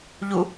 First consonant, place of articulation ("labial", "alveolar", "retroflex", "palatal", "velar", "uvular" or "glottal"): palatal